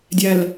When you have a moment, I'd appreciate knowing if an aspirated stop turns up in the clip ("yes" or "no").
no